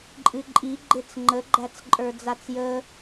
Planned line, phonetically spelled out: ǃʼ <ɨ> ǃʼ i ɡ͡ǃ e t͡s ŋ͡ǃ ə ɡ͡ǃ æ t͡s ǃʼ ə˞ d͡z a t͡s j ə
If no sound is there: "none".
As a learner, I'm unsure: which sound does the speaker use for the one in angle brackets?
ɨ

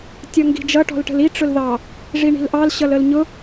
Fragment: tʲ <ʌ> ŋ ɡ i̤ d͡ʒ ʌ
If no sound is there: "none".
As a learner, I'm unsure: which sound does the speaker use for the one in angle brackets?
ʌ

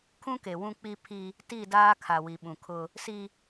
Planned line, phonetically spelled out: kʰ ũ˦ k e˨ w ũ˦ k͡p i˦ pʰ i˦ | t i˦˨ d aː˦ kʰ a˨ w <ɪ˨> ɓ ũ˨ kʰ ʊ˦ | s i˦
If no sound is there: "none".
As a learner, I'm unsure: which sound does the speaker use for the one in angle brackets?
i˨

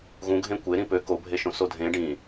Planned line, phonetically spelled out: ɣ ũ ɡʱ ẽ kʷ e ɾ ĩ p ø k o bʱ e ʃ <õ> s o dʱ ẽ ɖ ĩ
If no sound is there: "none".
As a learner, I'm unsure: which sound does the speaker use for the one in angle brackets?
õ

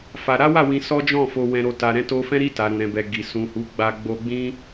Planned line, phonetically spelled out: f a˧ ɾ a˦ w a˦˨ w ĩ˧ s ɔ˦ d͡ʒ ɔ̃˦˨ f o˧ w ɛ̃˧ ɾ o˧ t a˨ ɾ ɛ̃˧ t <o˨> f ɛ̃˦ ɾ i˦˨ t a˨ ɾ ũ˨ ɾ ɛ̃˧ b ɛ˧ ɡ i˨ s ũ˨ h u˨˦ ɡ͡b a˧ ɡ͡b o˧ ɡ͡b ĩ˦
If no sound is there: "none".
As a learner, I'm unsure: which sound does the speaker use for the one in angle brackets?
o˧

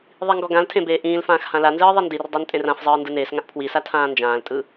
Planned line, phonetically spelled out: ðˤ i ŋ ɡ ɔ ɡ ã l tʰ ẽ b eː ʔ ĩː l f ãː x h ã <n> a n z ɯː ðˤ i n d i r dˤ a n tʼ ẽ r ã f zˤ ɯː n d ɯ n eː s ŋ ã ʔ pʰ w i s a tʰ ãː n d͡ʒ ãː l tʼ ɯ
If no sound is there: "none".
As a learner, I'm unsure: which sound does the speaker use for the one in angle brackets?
l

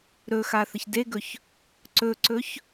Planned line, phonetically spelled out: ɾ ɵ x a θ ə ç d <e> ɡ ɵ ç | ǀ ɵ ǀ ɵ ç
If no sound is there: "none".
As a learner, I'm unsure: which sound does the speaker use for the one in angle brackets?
e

